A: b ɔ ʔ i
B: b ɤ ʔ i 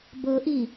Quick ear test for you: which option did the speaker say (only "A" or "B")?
B